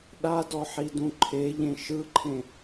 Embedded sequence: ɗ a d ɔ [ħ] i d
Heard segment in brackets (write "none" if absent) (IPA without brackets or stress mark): ħ